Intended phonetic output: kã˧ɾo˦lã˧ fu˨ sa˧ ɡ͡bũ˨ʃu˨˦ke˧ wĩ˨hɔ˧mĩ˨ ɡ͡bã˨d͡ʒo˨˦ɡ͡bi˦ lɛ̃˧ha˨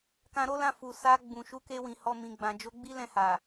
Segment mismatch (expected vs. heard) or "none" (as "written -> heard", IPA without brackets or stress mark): none